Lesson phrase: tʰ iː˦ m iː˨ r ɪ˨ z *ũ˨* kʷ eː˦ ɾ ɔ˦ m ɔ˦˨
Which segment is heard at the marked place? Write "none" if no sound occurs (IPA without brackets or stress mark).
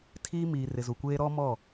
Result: u˨